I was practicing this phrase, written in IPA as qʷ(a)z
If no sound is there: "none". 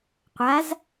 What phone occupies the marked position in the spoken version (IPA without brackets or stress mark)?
a